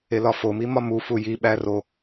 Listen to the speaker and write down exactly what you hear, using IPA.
e l ɒ f o m i m ɒ m u f u j i ɓ æ r o

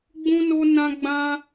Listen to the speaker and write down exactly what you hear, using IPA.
ɡ͡b ũ˦ n o˦ n ã˦ ɡ͡b ã˦

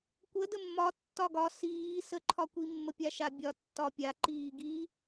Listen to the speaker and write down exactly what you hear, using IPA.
kʷ ə d ə mː ɒ tː ɒ ɡ ɒ s iː s ə ǃʰ ɒ kʷ i mː ə pʲ a ʃ a bʲ ɒ tː ɒ pʲ a ǃ iː ɡ i

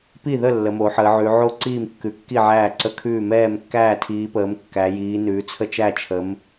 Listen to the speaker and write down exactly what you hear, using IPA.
p i˥˩ ð ə˥˩ lː ə˨˦ m o˨˦ ħ əː˨˦ ʕ ʉ˨˦ ʕ o˥˩ ǀ iː˥˩ m kː ʉ˨˦ kː i˥˩ ʕ æː˥˩ ǀ ə˥˩ kʰ ʉː˥˩ m ɛː˥˩ m kː æː˥˩ tʰ iː˨˦ p əː˨˦ m kː æ˨˦ j iː˨˦ n ʉː˨˦ t͡sʰ ə˥˩ t͡ʃ æ˥˩ t͡ʃʰ ə˨˦ m

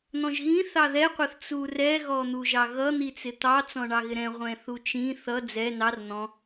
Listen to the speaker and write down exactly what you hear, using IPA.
n̪ ɔ̃ ʒ ɣ ĩ θ ɑ ð ɛ qʷ ʌ θ t͡s u r ɛ ɣ ɔ n̪ u ʒ ɑ ɣ ʌ n̪ i t͡s ɪ t̪ ɑ t͡s ɔ̃ ɳ ɑ ɣ ɪ ɾ ɛ̃ ʁʷ ɛ̃ θ u t͡ʃ ĩ θ ʌ d͡z ɛ n ɑ r n̪ ɔ̃

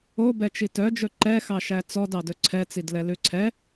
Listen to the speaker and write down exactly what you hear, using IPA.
o b ɛ t͡ʃ i t œ d͡ʒ ɵ ǃ ɛ x ɑ ʃ æ t͡s ɔ d ɑ d ɵ ǀʰ ɛ t͡s i d l ɛ l ʉ ǀʰ ɛ

